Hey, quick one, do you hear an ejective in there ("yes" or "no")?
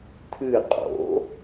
yes